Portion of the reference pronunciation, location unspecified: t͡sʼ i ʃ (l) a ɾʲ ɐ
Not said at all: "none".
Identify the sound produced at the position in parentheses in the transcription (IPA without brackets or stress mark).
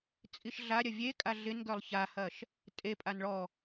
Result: ɮ